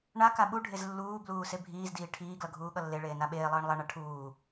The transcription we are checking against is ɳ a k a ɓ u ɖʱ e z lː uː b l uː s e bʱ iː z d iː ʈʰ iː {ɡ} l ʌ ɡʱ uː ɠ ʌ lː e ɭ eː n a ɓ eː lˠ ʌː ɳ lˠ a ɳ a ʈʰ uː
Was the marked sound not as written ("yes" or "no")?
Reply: no